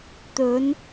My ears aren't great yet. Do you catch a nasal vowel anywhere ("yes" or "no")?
no